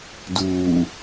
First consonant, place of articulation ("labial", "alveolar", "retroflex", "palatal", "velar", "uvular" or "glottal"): alveolar